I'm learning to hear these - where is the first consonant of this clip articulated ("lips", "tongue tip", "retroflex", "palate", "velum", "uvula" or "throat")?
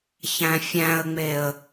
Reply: palate